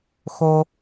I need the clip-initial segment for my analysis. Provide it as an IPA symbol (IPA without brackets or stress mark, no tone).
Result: x